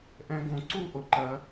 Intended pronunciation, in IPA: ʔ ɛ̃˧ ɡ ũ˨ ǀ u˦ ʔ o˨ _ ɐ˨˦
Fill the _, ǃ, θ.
ǃ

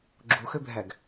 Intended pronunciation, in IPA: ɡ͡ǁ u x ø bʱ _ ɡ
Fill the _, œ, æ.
æ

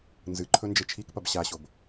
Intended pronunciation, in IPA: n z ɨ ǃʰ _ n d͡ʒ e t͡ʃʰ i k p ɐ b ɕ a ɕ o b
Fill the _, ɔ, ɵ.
ɵ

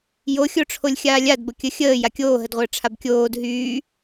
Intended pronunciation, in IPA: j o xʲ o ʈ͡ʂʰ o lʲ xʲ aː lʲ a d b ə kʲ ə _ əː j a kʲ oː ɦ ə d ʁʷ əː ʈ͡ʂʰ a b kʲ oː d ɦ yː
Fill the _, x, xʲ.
xʲ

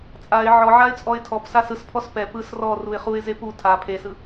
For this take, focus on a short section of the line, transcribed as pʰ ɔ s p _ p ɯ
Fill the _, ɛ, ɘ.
ɛ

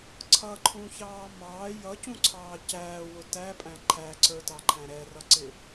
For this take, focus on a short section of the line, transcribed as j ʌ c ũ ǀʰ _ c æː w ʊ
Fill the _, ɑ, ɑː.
ɑː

